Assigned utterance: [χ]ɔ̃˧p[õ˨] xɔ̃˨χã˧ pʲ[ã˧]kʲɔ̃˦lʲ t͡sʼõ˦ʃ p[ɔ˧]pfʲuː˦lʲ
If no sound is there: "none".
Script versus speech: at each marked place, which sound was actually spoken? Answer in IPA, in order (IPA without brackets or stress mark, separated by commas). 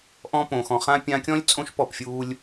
ʔ, õ˨, ã˧, ɔ˦˨